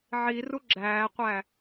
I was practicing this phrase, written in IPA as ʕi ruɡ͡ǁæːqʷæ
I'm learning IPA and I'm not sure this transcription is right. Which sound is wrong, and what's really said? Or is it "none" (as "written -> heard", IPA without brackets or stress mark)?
none